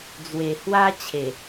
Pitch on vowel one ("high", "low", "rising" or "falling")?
low